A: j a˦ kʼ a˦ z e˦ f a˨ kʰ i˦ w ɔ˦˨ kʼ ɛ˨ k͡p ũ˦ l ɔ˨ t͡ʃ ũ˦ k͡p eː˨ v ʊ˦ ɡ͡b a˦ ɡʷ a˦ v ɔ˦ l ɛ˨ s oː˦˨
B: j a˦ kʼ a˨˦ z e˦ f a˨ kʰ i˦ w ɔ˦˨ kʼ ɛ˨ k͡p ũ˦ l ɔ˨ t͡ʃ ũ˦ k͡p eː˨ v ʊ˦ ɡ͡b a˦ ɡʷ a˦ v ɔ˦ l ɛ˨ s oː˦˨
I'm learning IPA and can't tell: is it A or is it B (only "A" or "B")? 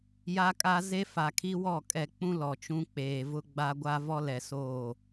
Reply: A